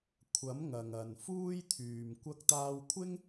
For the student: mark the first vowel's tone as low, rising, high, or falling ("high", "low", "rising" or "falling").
rising